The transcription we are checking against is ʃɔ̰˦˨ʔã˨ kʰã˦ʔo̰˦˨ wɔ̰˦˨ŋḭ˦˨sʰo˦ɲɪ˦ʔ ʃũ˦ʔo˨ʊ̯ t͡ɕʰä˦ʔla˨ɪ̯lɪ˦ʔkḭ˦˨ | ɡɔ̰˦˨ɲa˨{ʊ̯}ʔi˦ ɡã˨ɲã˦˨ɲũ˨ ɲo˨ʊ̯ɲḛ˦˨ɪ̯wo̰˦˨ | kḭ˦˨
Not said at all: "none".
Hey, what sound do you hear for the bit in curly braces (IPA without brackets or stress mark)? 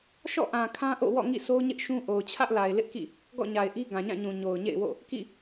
ɪ̯